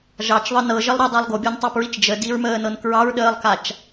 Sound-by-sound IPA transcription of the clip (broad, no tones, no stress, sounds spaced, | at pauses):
ʒ ɑ t͡ʃ ðˤ ɤ n ɤ ʒ ə lˠ ɾ ɤ dˤ o lˠ ɡ o bʲ ɤ n tˤ ɑ p ɹ i t͡ʃ d͡ʒ ə d i ɹ m əː n ɤ n k ɹ ɑ ɹ ɗ əː lˠ k a t͡ʃ